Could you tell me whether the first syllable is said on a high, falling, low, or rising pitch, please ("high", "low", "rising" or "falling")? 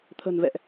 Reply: low